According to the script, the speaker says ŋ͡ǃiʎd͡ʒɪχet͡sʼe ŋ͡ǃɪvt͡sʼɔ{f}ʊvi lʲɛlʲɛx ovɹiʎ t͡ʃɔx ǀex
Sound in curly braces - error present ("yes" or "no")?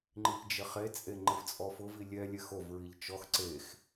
no